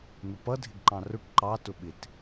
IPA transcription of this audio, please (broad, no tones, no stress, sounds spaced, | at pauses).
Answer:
n̪ ʊ p ʌ dʱ ɪ ɡ ǃ ɑ̃ r ʊ ʈ ǃ ɑ t ʊ ɓ ɪ t